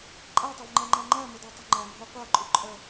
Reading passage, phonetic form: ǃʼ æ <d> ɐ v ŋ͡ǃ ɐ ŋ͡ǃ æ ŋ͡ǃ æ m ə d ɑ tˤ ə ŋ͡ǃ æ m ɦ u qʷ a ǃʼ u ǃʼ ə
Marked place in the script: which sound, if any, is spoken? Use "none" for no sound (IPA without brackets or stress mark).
tˤ